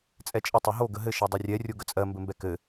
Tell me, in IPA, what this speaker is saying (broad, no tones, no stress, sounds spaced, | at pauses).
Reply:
t͡sʼ ɛ t͡ʃʼ ə tˤ ø ɦ o ɡ ə ɦ ɘ ʃ ɛ dˤ ɘ rʲ ɛ rʲ o ɡ ə t͡sʼ ɜ m b ɘ m b ɛ k ɘ